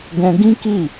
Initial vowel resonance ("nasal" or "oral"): nasal